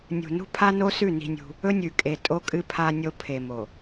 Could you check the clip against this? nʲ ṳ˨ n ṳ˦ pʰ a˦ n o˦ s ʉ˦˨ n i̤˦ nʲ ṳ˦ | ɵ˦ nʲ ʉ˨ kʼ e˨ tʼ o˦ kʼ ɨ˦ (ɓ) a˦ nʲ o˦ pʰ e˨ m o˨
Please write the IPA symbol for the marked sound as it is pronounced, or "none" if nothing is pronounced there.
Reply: pʰ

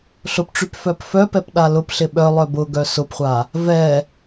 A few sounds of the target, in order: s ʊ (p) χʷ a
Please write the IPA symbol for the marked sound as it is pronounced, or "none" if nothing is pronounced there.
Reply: p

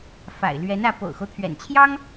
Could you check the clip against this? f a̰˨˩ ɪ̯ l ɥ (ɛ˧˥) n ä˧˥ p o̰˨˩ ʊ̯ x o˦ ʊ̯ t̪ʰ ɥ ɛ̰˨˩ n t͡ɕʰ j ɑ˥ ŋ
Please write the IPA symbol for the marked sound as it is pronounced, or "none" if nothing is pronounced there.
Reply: ɛ˧˥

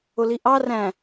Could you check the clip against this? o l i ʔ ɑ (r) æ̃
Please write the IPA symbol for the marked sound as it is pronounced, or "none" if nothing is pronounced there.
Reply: r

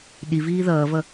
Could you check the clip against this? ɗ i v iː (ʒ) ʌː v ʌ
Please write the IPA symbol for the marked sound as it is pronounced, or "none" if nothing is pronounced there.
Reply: ð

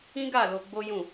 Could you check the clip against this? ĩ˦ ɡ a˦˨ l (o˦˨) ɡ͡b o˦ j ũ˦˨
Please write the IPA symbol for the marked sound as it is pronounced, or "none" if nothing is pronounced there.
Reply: o˧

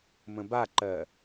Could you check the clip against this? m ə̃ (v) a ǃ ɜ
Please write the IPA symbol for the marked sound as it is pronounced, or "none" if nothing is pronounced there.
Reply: b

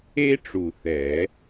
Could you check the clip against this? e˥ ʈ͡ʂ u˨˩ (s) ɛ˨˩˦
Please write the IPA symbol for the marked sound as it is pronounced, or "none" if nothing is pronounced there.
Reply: θ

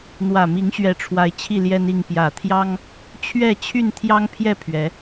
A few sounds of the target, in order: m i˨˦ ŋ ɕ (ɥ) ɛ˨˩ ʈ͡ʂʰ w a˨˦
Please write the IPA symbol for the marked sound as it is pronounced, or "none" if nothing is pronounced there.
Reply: ɥ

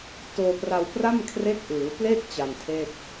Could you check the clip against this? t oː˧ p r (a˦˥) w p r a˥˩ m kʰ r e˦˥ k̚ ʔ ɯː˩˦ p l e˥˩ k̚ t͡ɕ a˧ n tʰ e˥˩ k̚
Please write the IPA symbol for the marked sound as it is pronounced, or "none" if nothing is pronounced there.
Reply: a˧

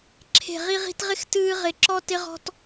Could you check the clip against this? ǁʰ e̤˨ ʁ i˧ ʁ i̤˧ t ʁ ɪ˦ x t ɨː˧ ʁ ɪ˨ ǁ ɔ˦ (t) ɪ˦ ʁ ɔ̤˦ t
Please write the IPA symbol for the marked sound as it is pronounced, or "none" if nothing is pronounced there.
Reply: t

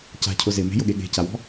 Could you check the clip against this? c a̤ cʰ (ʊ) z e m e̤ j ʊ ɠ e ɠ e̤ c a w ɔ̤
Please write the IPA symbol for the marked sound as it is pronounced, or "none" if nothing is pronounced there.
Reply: ʊ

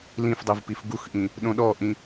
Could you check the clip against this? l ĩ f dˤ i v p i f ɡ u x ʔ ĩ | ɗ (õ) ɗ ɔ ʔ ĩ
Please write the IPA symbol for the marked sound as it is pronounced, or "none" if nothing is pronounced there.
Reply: õ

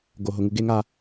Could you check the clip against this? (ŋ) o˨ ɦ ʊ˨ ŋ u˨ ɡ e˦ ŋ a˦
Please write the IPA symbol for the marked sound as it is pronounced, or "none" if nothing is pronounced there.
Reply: ɡ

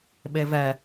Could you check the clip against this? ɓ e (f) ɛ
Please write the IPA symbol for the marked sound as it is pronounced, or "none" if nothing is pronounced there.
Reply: v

